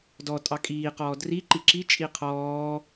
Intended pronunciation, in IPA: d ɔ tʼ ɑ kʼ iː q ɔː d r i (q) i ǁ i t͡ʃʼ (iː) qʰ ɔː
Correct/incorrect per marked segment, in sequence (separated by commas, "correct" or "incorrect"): incorrect, incorrect